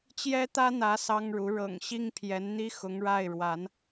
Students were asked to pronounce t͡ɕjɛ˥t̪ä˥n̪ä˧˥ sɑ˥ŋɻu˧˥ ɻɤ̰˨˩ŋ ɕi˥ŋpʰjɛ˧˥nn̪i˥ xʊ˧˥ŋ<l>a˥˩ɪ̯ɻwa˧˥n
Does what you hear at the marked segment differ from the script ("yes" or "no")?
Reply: yes